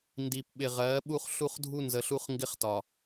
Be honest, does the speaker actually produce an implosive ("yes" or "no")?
yes